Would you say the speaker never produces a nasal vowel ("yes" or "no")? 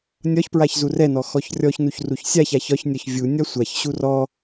yes